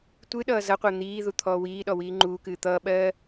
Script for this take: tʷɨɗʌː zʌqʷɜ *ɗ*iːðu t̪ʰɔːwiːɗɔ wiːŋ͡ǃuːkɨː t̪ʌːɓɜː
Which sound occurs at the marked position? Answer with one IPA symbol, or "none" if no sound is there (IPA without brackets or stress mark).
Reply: n̪